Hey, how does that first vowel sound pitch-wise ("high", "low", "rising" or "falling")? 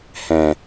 low